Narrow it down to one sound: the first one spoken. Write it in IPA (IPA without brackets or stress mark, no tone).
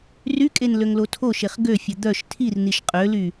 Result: r